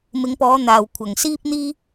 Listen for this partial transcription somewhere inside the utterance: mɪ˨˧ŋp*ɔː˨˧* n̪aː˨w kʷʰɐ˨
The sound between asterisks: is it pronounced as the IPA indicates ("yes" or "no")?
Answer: yes